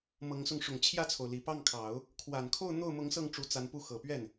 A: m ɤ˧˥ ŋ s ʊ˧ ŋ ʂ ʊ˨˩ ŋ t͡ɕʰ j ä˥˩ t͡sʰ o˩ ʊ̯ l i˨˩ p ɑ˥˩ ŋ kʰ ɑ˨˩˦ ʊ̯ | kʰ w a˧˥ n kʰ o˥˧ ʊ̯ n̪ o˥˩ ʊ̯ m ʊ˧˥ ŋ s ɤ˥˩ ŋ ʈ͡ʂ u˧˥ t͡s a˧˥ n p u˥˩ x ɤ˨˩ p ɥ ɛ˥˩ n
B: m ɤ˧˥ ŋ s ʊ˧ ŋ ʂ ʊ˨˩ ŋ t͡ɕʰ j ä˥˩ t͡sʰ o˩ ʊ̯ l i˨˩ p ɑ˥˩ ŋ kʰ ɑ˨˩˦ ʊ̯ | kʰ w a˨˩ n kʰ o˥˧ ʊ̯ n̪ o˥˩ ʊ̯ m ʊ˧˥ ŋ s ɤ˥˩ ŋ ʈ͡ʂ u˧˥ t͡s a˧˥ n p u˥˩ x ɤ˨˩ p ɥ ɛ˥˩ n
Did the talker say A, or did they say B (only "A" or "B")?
B